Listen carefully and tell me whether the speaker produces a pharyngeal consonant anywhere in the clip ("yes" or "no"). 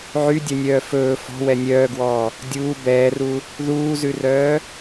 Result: yes